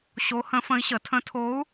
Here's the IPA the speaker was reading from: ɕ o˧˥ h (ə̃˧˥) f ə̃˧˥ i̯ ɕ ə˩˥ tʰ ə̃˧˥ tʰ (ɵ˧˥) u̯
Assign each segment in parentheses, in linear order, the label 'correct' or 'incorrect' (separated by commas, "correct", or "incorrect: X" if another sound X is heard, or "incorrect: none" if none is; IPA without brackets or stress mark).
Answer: correct, incorrect: o˧˥